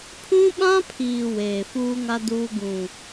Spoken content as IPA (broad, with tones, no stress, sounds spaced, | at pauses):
pʰ ũ˦ ɓ ã˦ pʰ iː˨ w eː˨ f uː˦ ŋ a˦ d uː˦ ɡ ũ˨